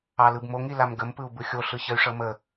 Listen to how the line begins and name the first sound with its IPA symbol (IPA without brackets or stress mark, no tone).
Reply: ɑ